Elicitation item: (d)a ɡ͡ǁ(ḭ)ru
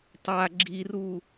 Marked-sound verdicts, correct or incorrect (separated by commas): incorrect, incorrect